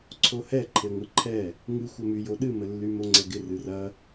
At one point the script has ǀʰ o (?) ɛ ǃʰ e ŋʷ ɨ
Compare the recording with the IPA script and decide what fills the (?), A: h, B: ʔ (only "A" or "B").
A